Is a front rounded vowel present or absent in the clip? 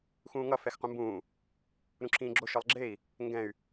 present